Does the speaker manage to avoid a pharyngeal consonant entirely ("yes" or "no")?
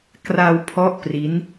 yes